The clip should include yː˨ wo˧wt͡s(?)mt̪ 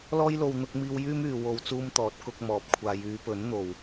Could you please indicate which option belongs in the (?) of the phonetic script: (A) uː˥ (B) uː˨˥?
A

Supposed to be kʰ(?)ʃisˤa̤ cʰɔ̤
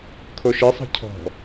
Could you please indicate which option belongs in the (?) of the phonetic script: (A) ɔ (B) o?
B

